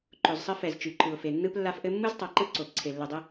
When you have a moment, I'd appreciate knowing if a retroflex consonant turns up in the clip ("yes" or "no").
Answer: no